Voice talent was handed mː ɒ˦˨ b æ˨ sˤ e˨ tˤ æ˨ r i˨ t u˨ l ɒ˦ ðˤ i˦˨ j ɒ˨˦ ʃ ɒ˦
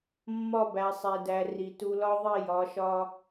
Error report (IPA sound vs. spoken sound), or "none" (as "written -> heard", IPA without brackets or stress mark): tˤ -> d